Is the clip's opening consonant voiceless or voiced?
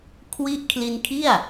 voiceless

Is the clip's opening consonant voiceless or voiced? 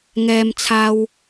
voiced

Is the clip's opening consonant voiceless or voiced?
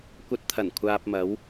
voiceless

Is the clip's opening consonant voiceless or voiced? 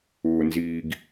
voiced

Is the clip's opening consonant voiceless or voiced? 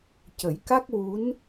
voiceless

